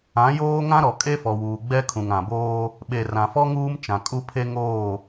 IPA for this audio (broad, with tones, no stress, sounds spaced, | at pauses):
ã˨˦ j oː˦ ŋ ã˦ ɾ ɔ˨ kʼ e˦ f ɔ˨ w uː˨ ɡ͡b ɛ˦ kʰ ũ˨ ŋ ã˨ b oː˦ | ɓ e˨ r ã˨ f ɔ˦ ŋ uː˦ m t͡ʃ ã˨ kʼ u˦ pʰ e˦ ŋ oː˦˨